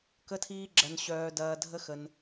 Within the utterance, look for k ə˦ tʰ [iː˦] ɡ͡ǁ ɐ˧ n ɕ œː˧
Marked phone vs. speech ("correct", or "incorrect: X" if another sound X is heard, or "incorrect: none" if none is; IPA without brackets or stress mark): correct